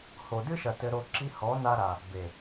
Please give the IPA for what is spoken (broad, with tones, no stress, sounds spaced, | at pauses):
h o˨ d ɨ˦ ʃ ɐ˨ t ɘ˧ ɾ o˧ ǁ i˦ h ɔ˨˦ n a˧ ɾ a˨ | b e˨